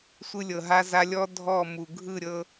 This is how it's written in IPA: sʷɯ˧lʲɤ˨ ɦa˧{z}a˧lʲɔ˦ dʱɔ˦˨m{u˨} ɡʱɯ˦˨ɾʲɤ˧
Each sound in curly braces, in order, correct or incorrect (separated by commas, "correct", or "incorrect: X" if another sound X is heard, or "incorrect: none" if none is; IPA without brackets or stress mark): correct, correct